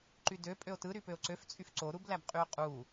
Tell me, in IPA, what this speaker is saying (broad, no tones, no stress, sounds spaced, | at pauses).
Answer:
ǃ y d ø pʼ ø o̯ t ɯ ɾ y p ø o̯ ǀ ø f t͡sʼ y f ǀ o ɾ u b l æ b qʼ y o̯ qʼ u